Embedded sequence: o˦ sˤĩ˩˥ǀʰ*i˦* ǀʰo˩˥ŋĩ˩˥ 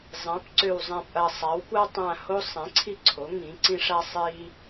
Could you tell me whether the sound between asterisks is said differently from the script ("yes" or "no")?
no